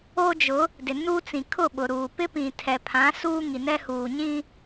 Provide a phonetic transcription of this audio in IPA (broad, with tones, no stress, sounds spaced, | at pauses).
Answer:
o˦ d͡ʒ ʊ˨˦ | d ɪ˨ n uː˦ t͡s ĩ˨ kʰ ʊ˦˨ ɓ ʊ˨ ɾ uː˨ p ɪ˦ p ĩ˨ tʰ ɛ˨ pʰ ã˨˦ s uː˦ ŋ i˨ n ɛ˦ h uː˨ ɲ ĩ˦